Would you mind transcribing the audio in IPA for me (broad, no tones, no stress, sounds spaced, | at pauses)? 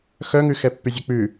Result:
x œ ŋ ʉ x ɛ pː y zʲ ø k͡p ʉ